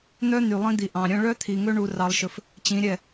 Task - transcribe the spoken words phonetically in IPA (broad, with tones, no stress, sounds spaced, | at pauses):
n̪ œ˦ n̪ y˨ lˠ ĩ˦ d̪ i˨ ʔ ɑ̃˨ ɾʲ œ̃˦ ɭ œ˦ t̪ʰ i˨ ŋ ɵ˦ ɳ u˦ r ɑ˦ lˠ ʃ ɵ˦ f | t͡ɕ ĩ˨˦ ɾʲ ɛ˦˨